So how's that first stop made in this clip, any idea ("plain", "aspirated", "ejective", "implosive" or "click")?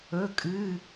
ejective